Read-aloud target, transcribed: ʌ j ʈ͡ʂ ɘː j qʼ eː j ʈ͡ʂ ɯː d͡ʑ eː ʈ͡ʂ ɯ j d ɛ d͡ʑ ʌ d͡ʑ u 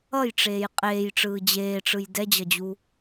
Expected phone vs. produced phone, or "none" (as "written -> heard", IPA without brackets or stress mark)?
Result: ɘː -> eː